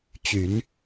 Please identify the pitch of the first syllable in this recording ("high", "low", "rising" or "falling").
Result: low